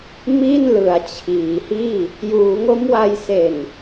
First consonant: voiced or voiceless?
voiced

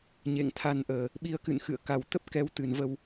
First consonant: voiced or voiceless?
voiced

